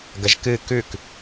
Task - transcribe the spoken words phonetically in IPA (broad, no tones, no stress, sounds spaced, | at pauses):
ɡ ɐ ʒ k ɨ k ʉ k